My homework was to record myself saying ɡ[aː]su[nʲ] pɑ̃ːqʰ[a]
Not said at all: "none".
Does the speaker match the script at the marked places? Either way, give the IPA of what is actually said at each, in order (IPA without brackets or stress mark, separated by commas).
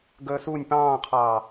əː, nʲ, ɑ